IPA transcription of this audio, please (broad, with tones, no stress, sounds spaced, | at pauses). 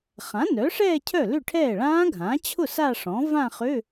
χ ã˩˥ n œ˩˥ ʂ ɛː˥˧ cʰ œ˥˩ l ʏ˥˩ ʈʰ ɛː˥˩ ɭ ãː˦˥ ɡʱ ãː˩˥ t͡ɕʰ ʊ˥˩ s a˥˧ ʂ ɔ̃˩˥ v ã˥˧ χ ø˧˥˧